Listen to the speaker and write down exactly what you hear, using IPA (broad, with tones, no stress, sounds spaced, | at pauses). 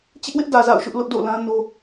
t͡ɕ ɪ˦ ʔ w ɪ˦ ʔ d ä˨ z a̰˦˨ ʊ̯ ʃ ʊ˦ ʔ l ʊ˦ ʔ d o̰˦˨ l ã˦ n o˦